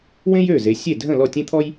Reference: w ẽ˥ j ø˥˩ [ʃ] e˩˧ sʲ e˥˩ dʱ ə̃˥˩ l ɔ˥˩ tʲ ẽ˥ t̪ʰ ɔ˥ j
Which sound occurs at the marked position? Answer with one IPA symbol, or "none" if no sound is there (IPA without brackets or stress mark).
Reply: z